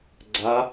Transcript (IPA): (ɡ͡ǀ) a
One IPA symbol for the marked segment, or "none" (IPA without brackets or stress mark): ɡ͡ǀ